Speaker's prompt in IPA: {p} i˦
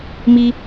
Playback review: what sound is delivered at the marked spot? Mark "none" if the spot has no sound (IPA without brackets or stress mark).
m